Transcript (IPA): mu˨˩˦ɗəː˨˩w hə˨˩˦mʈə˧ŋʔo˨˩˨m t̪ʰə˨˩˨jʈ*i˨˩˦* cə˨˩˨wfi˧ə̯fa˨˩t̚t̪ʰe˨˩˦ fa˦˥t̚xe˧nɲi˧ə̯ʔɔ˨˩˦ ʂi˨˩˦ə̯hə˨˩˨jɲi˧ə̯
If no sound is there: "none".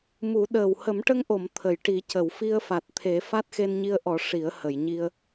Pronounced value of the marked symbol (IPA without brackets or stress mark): i˨˩˦